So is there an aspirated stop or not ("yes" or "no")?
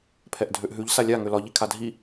yes